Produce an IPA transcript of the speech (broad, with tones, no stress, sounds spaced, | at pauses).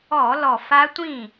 ɔ˧˩˧ l ɔ˨˩ f a˦˥ tʷ ĩ˥˩